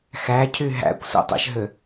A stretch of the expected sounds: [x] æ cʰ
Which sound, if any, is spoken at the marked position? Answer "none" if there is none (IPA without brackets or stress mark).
x